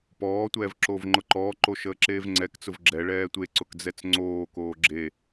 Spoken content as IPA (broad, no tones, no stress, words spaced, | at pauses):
pɔːtʷɛːv ǁoːvŋ͡ǃʊǃɔːǃo ʃəːǁeːvŋ͡ǀɛkt͡sʊv ɡ͡ǁɛɭɛː tʷeǀʊk d͡zɛt͡sŋ͡ǀoːkoː ɡ͡ǁe